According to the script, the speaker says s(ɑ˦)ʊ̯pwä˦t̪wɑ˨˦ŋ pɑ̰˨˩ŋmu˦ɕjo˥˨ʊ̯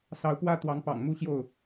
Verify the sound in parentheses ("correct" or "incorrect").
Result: incorrect